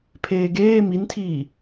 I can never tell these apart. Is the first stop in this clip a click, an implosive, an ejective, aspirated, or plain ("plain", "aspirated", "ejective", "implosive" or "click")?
aspirated